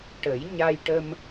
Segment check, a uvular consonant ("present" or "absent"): absent